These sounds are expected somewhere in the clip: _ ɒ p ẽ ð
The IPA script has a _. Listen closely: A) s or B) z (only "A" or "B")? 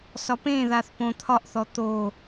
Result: A